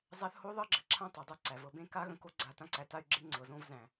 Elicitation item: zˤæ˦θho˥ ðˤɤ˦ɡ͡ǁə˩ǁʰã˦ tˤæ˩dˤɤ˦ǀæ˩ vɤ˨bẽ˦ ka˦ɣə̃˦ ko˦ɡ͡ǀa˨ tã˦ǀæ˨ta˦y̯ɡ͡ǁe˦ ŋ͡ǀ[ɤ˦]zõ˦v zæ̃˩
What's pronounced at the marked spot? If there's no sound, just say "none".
ɤ˩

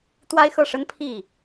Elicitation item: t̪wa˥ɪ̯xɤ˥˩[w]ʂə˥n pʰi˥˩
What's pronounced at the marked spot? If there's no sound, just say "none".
none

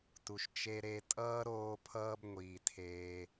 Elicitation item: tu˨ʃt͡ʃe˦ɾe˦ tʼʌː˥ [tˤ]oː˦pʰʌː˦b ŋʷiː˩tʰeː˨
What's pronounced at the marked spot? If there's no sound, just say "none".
ɾ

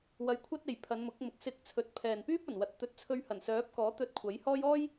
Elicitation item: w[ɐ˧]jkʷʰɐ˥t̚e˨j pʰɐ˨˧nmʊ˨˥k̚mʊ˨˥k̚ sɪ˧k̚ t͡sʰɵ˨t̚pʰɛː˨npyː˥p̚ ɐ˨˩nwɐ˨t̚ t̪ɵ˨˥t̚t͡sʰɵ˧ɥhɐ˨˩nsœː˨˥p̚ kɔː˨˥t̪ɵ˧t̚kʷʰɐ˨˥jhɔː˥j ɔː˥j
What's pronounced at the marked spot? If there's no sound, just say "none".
ɐ˧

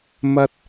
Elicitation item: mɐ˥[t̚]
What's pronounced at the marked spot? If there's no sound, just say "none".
t̚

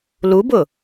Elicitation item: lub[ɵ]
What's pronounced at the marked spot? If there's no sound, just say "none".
ʊ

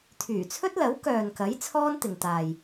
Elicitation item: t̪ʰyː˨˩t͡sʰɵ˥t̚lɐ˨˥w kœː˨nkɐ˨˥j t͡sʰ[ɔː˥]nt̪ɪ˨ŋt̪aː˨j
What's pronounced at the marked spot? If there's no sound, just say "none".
ɔː˥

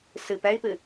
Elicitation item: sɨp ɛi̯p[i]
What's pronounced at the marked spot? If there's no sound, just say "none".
ɨ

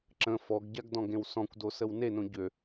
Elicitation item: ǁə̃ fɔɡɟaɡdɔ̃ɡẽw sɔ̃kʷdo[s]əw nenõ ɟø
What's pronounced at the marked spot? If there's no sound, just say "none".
s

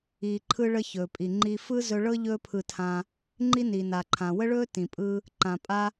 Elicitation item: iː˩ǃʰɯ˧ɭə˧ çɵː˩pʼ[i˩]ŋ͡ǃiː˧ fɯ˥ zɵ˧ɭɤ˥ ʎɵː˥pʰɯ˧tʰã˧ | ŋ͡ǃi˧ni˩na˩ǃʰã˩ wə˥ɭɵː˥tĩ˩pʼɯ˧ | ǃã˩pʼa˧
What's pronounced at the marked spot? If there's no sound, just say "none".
i˩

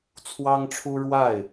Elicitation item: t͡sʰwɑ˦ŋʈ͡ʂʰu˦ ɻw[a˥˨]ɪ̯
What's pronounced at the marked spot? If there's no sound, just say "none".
a˥˨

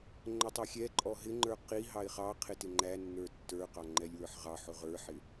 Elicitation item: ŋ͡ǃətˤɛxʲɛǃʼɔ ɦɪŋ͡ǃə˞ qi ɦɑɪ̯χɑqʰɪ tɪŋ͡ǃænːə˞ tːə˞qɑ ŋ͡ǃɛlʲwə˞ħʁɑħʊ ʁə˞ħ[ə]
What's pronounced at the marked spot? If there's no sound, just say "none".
ɪ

